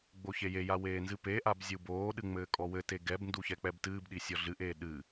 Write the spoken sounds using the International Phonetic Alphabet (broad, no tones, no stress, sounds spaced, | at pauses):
ɡ͡b o ç e j e j a w eː n z ɨ p e ʔ a b zʲ u b oː ɗ ɨ ŋ͡m ɘː kʼ ɔ w ɘ t e ɡ ɛ b n d u ç ɛ k͡p ɛ b t ɨː b ɗ i sʲ ɔ ɮ ɨ ʔ eː ɗ ɨ